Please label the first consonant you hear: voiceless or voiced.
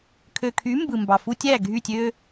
voiceless